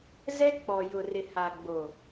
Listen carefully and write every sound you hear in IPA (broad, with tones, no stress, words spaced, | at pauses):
zɛ˦ k͡pɔ˨ jʊ˨rɪ˨ha˨ ɡ͡bo˨